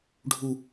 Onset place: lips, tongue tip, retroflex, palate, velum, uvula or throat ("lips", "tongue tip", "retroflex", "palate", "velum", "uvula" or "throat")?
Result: retroflex